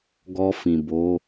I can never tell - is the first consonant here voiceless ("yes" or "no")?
no